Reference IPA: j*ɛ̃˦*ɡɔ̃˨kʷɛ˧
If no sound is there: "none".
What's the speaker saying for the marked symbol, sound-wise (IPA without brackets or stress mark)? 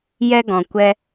ɛ˦